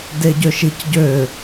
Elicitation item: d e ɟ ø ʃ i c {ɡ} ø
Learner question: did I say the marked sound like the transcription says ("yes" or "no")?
no